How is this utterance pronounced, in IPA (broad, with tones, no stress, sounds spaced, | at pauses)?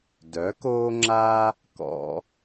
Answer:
d œ˩˥ k oː˥ ŋ͡ǁ a˥ | k ɔ̰˧